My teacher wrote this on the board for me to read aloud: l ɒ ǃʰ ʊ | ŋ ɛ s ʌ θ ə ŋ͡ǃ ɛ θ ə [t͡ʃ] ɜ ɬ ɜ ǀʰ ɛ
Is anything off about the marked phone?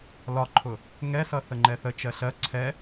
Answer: no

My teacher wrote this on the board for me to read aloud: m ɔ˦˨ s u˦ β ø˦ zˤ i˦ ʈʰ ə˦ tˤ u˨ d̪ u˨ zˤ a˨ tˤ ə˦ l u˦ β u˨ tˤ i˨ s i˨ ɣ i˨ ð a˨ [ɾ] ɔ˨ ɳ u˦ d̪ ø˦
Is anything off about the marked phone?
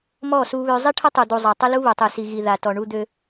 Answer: yes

